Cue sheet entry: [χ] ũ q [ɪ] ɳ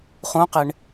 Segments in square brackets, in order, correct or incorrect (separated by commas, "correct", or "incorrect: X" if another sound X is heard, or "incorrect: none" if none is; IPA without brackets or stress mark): correct, correct